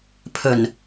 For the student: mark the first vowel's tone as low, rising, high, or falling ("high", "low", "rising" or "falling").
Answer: low